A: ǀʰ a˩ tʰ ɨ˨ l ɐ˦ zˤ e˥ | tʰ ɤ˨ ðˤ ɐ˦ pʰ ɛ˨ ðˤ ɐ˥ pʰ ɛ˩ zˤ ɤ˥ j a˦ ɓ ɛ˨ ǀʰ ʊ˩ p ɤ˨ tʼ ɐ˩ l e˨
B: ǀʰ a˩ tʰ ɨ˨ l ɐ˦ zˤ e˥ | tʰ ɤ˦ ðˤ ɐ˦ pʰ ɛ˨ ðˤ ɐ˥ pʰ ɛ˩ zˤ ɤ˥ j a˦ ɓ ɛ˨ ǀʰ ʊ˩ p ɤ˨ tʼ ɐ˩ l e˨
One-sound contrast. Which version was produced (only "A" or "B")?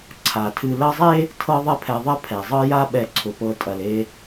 B